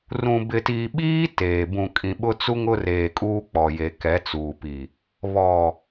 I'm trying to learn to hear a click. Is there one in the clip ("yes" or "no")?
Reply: no